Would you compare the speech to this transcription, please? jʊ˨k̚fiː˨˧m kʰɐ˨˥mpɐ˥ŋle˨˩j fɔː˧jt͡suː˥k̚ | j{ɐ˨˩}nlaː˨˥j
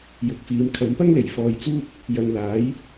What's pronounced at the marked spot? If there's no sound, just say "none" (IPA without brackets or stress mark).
ɐ˨